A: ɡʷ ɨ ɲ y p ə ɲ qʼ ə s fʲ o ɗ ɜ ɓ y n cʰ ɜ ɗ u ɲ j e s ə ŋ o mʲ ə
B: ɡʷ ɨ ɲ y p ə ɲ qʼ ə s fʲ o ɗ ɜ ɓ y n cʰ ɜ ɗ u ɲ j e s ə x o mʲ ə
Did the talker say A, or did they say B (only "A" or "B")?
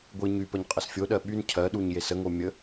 A